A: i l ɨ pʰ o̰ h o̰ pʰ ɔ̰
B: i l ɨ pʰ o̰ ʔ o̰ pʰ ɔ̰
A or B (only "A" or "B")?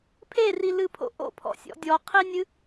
B